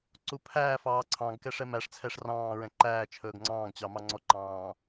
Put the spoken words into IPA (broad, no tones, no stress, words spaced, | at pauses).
ǀupʰæːfɑː ǀʰɑ̃ɡkɛʂ ɛmæʂt͡sʰɛʂ rɑ̃ːɹɛ̃ ǃæːt͡ʃʰɵːɡ ŋ͡ǀɑ̃ːɡt͡ɕɑ mɑŋ͡ǀɔǃɑ̃ː